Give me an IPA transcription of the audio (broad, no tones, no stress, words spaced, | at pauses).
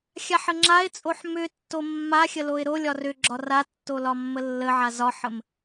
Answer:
xʲaħəŋ͡ǁaɪ̯t͡sʼoħ mʏtːo mːa xʲəloɪ̯ɾolʲɒr ʏɡ͡ǁɒ ratːo lɒmːəlːəʕa zɒħəm